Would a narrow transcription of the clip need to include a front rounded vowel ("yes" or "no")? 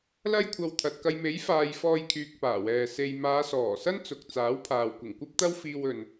yes